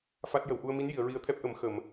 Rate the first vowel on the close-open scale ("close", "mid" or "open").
open